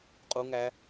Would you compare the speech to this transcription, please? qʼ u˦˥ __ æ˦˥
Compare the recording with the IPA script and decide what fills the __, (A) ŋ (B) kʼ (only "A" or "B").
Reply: A